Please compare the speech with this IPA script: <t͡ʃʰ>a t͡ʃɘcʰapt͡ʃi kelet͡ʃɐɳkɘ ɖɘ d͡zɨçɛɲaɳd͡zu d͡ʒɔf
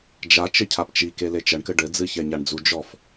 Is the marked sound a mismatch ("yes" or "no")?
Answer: yes